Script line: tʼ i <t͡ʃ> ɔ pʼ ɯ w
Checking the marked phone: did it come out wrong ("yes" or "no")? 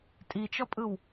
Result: no